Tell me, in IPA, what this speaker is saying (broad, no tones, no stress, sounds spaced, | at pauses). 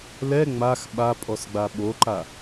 l ɛ ŋ͡m a x ɓ a pʼ ɔ s ɡ͡b a ɓ o ǃ a